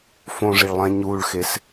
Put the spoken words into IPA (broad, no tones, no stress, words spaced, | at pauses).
fõʐiɭlˠɛ̃ ɲuːɭxes